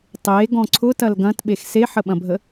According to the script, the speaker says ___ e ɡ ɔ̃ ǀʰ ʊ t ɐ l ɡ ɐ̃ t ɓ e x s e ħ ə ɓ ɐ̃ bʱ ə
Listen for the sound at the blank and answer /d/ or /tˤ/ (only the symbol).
tˤ